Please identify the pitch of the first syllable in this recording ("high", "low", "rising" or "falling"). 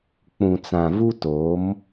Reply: low